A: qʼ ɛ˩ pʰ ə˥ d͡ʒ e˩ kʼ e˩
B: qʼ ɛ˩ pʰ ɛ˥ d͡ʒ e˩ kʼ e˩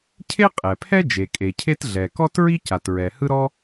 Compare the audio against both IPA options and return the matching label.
B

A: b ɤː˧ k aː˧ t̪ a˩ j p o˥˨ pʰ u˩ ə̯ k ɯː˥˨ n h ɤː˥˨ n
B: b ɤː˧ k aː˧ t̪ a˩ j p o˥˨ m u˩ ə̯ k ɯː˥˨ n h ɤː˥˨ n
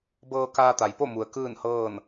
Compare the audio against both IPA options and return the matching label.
B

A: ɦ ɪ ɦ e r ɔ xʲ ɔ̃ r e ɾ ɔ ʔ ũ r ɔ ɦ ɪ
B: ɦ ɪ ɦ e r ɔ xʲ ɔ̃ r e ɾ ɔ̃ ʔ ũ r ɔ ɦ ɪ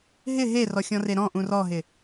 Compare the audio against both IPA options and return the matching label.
B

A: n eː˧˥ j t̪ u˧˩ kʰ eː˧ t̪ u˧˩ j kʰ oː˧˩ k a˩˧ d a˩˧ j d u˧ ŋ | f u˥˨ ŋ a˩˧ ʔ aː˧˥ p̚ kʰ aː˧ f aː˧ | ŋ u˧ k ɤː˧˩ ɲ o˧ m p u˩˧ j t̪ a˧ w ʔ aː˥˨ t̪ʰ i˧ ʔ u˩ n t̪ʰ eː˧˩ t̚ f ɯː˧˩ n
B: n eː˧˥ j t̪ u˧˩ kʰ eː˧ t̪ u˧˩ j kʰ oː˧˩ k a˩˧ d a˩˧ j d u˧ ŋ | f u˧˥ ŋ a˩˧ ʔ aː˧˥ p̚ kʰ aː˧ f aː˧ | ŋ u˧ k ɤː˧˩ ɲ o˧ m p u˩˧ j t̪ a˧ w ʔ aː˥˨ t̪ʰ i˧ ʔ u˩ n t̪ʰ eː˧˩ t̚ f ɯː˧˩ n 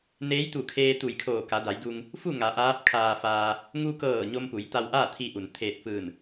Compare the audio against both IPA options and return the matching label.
A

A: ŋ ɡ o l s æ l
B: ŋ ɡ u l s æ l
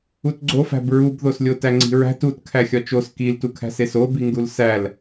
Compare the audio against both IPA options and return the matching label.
B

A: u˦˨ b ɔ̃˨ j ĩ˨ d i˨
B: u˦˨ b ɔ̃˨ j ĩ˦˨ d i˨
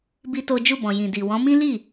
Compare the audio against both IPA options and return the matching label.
A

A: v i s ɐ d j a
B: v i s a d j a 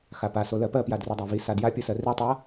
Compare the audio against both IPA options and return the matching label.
B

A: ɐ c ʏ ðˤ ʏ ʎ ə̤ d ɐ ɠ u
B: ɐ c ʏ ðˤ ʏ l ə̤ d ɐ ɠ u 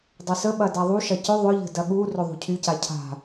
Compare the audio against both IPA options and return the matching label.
A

